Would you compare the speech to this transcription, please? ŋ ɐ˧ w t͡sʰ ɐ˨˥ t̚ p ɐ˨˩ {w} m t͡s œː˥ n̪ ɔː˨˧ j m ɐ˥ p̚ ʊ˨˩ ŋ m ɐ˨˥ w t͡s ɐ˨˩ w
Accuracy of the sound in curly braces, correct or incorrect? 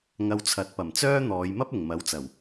incorrect